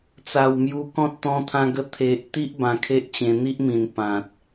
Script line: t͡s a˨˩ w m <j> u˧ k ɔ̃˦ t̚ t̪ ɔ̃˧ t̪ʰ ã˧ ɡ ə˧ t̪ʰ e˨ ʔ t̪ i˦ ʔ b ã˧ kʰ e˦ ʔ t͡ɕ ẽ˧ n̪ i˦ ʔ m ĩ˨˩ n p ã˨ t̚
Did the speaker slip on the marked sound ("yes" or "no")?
no